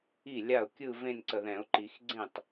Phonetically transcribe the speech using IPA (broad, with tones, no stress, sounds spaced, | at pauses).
i˥˩ lʲ a˥˩ ʊ̯ kʲ ɯ˥˧ v ẽ˥˧ n ǀ ə˨ ð ɛ̃˨˩˦ ʊ̯ ǃ i˨˩˦ x ɡ͡ǀ ẽ˥˩ tˤ